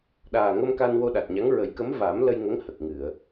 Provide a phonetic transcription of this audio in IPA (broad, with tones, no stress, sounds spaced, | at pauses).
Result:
ɗ aː˨˩ ŋ ə˧ m k a˧ n w o˧ ɗ a˨˩ t̚ ɲ a˧˥ ŋ ɹ ə˨˩˦ j k ə˧˥ m v aː˨˩˦ m l ə˧ j ŋ ə˧˥ ŋ h ə˨˩ k̚ ŋ ɨ˨˩˨ ə̯